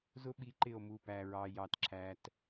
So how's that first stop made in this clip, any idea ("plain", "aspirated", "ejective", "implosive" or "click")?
implosive